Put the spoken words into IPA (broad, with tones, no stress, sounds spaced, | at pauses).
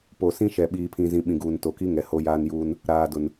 p o˨ s ĩ˦ ʃ ɛ˨ ɓ iː˨ pʰ ĩ˨ z ĩ˨ ɓ ĩ˨ ɡ uː˨ n t o˨ k i˦ ŋ ɛ˨ h o˦ j aː˦ n j uː˦ n | ɾ aː˨ d ʊ˨ n